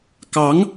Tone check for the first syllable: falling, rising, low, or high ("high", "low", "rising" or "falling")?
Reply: rising